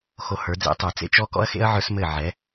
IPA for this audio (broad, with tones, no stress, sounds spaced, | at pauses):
x o˧ h ə˞˨˦ d͡z ḛ˦ tˤ ə˞˨ t͡s ḛ˦ t͡ʃ ɔ˦ k ɔ̰˦ ɐ̯ x ḛ˦ ɐ̯ ʕ ə˞˦ s m ɘ˦˨ ʕ ɛ˨˦